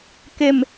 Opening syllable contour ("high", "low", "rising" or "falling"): low